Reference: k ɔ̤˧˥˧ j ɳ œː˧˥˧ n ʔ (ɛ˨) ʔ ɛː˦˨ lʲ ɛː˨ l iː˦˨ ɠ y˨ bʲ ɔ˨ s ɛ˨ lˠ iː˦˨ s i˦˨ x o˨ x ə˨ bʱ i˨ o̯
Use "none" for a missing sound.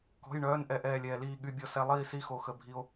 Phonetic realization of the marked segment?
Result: ɛ˦˨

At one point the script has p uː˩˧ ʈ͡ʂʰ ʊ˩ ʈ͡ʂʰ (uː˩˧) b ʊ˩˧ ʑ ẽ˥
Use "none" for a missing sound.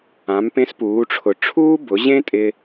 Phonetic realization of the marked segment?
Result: uː˥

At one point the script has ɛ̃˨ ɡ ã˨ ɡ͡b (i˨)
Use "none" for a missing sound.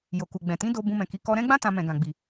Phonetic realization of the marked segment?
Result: i˨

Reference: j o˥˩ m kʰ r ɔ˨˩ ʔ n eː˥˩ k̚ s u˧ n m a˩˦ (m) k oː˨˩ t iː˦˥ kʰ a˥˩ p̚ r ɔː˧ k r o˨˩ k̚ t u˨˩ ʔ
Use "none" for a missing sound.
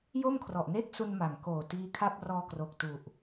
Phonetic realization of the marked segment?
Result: ŋ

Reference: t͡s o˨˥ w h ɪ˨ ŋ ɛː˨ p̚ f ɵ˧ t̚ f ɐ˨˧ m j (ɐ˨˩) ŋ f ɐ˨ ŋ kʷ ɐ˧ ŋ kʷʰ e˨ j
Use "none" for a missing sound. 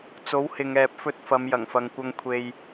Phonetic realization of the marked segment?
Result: ɐ˨˩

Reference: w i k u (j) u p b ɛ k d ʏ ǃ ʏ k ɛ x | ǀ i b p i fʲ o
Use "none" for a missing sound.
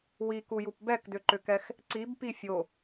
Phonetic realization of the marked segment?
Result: j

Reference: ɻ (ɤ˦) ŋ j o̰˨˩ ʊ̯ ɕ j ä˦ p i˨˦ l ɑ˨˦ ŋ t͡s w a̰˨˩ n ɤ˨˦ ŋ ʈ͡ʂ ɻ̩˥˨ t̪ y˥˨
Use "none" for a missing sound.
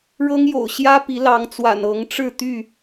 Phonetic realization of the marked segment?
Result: ɤ˦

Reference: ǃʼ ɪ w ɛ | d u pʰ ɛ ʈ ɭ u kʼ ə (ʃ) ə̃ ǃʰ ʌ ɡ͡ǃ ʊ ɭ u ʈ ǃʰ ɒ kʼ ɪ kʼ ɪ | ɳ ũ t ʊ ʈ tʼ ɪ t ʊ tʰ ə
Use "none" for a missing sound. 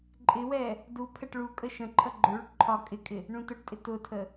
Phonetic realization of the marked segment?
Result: ʃ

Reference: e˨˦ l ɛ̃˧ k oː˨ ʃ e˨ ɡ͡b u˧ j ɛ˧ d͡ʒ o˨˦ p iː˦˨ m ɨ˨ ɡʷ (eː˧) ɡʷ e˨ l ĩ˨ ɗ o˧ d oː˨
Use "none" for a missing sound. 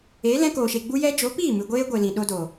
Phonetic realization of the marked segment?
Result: eː˧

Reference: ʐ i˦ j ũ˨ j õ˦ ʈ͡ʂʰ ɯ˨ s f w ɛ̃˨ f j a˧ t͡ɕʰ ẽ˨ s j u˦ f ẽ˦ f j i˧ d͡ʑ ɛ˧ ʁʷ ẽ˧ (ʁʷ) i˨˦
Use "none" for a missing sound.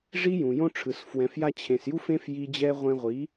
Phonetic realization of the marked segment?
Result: ʁʷ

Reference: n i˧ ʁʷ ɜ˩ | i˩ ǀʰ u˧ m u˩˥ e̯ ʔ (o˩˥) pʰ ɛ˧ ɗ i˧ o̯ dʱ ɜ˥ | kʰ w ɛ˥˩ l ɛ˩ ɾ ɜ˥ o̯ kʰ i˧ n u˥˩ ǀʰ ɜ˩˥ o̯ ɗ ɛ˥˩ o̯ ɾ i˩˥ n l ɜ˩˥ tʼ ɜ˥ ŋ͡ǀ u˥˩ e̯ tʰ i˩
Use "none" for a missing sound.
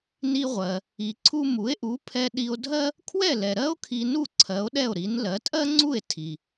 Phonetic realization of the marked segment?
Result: u˩˥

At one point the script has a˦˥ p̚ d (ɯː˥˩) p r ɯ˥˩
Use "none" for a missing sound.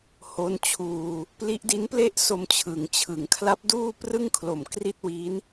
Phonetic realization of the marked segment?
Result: uː˥˩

